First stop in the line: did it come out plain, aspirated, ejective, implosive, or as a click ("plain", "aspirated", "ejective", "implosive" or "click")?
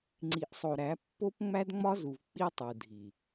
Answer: click